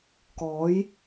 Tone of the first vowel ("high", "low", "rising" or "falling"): rising